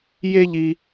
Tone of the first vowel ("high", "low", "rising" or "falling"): high